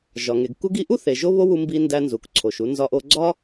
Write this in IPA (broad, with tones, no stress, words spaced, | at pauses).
ʒɒ˩ŋe˩ɡ ku˥ɡi˥ ʔu˥θe˩ ʒo˥βo˥wu˧mbi˧ ndæ˧nzu˩kǀʰo˩ʃu˧ nzɒ˧ʔo˧ ɡ͡ǀɒ˥